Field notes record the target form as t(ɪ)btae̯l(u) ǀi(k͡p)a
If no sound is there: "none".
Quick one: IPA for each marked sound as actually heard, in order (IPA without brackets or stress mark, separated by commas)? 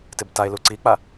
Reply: ɪ, u, k͡p